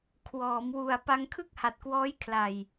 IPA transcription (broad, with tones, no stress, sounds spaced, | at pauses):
kʰ w ɔː˩˦ m w u˨˩ a̯ p a˧ ŋ kʰ ɯ˥˩ k̚ h a˨˩ t̚ k w ɔː˦˥ j kʰ l a˨˩ j